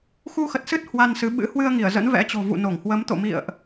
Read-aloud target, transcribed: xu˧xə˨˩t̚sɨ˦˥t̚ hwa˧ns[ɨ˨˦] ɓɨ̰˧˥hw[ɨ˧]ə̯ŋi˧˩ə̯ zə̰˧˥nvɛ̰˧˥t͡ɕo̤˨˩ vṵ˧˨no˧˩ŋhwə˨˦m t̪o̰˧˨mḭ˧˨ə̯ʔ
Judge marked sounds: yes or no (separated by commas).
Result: yes, yes